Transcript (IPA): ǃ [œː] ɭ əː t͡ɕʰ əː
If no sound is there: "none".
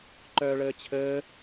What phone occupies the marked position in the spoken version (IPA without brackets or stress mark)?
œː